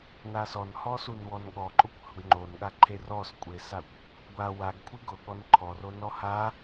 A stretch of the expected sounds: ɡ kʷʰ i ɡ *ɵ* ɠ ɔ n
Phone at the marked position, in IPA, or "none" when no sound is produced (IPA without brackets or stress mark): ʊ